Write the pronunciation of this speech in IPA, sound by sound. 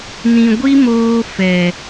n ĩ˨ ɡʷ i˦ m oː˧ f ɛ˨

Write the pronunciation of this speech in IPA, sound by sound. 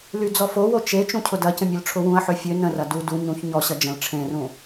l y d͡z ɔ f o w o t͡ʃ e t͡ʃ ũ cʰ ʊ d ɐ c ə̃ mʲ ʊ l ʈ͡ʂʰ ʊ w ũ ɐ̯ ħ ø fʲ ø n ə̃ r ɐ d u d u ɲ ũ ç ɲ ɔ ɕ ɐ d͡ʒ ə̃ l ʈ͡ʂʰ ẽ r ũ

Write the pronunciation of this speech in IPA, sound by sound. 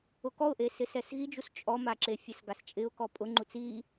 ʊ k ɔ ʊ̯ ʔ e s ɪ s ɛ s ɣ i d͡ʒ u s t͡ʃʼ ɔ m a ǁ e fʲ ɛ s ɡ a s t͡ʃʼ ɪ ʊ̯ k ɔ pʼ ʊ ŋ͡ǃ u t͡s i

